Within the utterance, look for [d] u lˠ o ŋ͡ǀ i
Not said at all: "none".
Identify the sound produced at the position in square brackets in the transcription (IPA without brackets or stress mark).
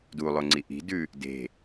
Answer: d